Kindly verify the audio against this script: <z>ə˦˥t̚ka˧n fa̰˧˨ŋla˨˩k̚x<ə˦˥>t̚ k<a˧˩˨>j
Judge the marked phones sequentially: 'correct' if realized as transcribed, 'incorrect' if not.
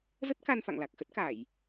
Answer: correct, correct, correct

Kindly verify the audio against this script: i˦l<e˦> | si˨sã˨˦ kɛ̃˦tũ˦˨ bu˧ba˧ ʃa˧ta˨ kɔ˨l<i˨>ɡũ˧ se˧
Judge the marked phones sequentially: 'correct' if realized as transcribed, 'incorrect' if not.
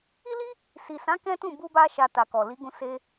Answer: incorrect, incorrect

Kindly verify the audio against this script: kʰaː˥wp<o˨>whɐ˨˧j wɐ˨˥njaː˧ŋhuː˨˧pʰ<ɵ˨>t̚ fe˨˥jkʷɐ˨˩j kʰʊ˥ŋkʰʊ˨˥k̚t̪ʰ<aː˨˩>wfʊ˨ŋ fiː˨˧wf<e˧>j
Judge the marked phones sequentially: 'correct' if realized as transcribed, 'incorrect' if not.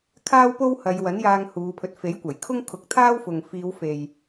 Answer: incorrect, incorrect, incorrect, incorrect

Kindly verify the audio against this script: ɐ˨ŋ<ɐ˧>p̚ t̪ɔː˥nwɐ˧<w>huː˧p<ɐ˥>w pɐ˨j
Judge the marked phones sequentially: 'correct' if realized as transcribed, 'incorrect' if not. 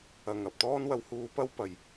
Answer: incorrect, correct, correct

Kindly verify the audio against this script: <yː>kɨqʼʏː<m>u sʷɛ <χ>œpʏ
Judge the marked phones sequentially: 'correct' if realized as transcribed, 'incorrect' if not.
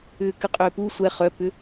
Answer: incorrect, incorrect, correct

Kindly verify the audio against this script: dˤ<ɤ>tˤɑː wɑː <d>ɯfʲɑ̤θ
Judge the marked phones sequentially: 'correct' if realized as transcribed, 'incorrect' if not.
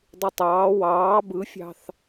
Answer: incorrect, incorrect

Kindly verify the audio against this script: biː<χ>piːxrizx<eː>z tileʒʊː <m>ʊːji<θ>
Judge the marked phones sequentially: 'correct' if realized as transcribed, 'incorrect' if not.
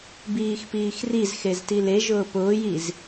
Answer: incorrect, incorrect, incorrect, incorrect

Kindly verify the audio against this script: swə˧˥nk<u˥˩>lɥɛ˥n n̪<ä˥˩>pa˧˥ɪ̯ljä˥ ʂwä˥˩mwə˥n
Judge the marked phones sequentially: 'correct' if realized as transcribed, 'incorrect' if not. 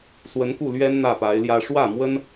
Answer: correct, correct

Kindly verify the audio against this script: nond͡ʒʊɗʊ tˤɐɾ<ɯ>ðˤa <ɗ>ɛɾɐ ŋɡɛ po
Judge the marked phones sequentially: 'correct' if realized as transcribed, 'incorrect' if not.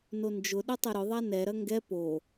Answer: incorrect, incorrect

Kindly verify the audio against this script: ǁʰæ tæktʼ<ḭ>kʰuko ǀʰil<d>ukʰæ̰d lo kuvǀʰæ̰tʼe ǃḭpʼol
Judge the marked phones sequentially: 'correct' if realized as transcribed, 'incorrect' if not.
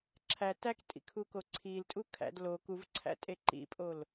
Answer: correct, incorrect

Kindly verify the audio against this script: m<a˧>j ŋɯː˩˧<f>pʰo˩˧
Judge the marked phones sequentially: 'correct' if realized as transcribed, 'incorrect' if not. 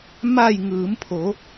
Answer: incorrect, incorrect

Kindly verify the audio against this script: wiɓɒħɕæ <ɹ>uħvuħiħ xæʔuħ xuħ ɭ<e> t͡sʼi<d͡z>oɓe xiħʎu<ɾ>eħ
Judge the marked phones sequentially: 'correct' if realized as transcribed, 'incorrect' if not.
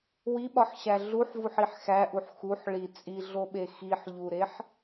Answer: incorrect, incorrect, incorrect, correct

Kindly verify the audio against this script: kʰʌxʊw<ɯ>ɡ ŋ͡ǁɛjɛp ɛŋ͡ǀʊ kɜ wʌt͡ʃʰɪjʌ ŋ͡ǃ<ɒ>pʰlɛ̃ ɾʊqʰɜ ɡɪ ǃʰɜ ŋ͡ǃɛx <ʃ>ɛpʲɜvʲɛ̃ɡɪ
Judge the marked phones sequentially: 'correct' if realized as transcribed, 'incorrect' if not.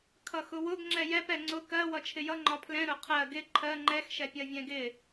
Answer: incorrect, correct, correct

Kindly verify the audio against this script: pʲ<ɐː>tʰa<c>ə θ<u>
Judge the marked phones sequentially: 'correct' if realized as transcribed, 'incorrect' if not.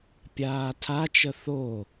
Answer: incorrect, incorrect, incorrect

